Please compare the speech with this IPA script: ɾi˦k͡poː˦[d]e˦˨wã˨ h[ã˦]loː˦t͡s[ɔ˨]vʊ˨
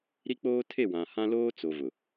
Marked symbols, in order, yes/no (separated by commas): no, yes, no